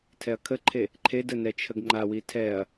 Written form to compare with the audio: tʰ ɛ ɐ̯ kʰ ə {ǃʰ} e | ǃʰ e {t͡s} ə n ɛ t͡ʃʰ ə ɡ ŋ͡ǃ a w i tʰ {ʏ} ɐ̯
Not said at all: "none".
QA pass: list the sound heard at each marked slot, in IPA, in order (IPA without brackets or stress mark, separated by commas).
ǃʰ, d, ɛ